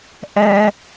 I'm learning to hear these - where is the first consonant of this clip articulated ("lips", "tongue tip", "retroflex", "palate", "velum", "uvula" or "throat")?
throat